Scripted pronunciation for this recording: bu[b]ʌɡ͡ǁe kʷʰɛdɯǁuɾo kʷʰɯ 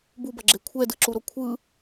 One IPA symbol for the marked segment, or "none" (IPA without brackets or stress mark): b